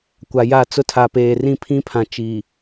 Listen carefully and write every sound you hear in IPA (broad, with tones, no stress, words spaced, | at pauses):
kʷa˨ja˦˨ t͡sʊ˦tʰa˨peː˨ rĩ˦pʰĩ˦pʰã˨ t͡ʃiː˨